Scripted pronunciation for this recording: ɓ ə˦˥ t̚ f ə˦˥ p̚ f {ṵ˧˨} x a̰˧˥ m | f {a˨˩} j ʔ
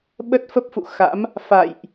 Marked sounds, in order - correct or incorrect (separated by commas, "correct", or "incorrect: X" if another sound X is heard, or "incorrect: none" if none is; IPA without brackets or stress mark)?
correct, incorrect: a̰˧˨